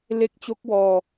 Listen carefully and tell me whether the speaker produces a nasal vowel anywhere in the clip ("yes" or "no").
no